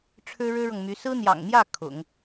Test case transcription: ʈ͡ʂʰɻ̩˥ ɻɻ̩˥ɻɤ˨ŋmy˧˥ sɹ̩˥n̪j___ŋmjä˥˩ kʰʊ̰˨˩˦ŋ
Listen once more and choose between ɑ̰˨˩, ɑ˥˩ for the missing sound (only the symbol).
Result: ɑ̰˨˩